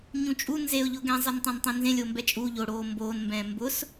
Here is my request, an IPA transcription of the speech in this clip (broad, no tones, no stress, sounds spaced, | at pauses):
ɲ ũ t͡ʃʼ u n z e ʊ̯ ʎ ʊː ɡ ɛ̃ zˤ ɛ n tˤ ã n tˤ ẽ n z ẽ lʲ oː m b ɛ t͡ʃʼ u ʎ o ɽ oː m b oː n m b ɛ̃ː m b ʊ s